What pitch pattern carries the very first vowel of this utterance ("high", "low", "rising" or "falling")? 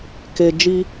low